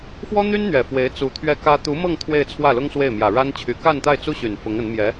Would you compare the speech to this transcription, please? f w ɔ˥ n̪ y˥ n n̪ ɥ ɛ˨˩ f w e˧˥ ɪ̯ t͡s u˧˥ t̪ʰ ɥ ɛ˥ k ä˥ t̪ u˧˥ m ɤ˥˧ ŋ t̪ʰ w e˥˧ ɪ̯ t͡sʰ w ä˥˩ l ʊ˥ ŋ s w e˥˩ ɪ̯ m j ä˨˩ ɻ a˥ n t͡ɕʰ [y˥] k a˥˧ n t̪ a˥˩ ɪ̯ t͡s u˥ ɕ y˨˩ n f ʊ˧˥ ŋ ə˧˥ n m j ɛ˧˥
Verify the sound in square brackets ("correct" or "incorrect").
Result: incorrect